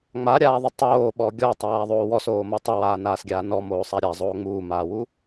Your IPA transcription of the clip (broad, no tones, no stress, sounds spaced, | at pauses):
ŋ͡m a ɾʲ aː ðˤ ɪ tˤ oː ɓ ɔ ɡʲ ɔ tˤ aː ðˤ oː w ɔ s oː m o tˤ ɪ w aː n aː s ɡʲ aː n ɔ m oː sˤ a ɾʲ a zˤ oː ŋ͡m uː m aː w u